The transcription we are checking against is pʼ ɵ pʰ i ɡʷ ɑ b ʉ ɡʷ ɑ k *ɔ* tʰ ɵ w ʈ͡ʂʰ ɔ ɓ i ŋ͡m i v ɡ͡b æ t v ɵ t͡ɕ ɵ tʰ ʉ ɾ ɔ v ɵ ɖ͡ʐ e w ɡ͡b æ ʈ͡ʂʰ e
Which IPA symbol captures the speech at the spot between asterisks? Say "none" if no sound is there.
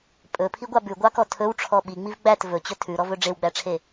ɔ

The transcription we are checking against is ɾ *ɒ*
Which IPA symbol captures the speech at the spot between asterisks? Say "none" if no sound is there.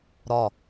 ɒ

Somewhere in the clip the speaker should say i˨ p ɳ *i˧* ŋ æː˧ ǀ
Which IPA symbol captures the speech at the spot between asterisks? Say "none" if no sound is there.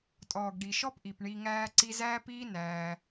i˧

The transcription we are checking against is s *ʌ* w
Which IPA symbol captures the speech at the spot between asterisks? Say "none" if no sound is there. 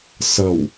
ʌ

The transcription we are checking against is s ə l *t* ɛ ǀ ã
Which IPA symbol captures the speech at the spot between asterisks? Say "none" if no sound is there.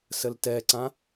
t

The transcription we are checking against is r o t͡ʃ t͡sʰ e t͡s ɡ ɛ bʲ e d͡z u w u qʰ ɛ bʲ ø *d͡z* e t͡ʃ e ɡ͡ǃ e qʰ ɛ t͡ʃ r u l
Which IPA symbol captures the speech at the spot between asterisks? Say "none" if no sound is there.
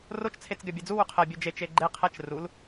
d͡ʒ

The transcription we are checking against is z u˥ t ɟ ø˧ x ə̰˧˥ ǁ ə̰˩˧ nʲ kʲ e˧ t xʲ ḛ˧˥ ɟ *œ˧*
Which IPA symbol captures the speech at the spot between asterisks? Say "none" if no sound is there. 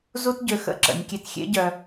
œ˧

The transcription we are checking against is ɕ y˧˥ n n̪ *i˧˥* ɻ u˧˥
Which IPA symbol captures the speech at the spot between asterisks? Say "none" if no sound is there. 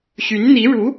i˧˥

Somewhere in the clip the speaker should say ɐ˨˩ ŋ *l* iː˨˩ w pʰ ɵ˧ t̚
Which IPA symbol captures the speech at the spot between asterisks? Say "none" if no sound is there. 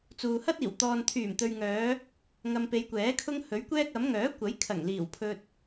l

